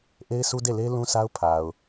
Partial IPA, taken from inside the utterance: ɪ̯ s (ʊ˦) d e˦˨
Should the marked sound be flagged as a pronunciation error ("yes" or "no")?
yes